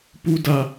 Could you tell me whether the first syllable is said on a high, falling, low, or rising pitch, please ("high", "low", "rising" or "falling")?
high